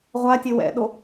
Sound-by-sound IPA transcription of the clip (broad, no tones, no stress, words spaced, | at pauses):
ʁʷatʲe wɛ̰ɗo